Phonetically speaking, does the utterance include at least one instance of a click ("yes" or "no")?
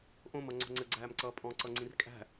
yes